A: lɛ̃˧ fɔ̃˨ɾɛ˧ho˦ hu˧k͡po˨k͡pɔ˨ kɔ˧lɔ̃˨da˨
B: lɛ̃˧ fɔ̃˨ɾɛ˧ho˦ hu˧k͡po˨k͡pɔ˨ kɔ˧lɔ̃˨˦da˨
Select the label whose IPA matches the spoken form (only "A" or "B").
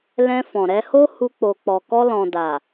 A